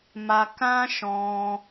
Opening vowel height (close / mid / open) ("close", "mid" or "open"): open